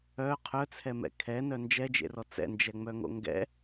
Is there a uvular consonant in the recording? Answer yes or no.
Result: yes